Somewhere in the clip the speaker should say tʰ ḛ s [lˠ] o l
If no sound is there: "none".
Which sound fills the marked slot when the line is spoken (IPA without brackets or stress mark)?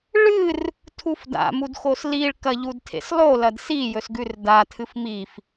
lˠ